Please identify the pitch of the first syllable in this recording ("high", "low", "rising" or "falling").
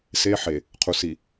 high